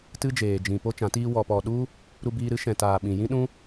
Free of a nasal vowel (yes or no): no